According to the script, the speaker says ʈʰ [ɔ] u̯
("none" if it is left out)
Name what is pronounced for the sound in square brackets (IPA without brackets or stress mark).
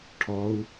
ɔ